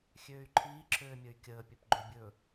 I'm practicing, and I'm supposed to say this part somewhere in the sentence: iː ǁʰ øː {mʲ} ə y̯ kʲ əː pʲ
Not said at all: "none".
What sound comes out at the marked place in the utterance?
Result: mʲ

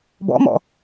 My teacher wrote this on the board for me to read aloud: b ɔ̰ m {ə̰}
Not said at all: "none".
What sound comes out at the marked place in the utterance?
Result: ɔ̰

